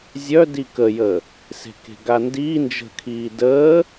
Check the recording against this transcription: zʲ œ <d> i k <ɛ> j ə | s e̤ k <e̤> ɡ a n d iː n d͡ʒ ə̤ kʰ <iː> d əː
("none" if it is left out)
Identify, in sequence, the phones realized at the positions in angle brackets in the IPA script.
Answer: d, ə, e̤, iː

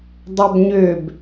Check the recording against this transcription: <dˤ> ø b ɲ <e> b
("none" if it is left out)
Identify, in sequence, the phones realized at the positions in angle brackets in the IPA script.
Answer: dˤ, ø

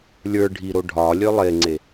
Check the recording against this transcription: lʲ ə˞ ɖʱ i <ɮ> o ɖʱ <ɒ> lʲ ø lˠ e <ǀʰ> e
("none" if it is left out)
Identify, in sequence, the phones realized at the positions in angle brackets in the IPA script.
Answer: ɾ, ɒ, ŋ͡ǀ

